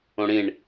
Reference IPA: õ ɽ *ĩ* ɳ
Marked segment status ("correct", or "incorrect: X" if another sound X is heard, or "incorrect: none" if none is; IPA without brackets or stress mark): correct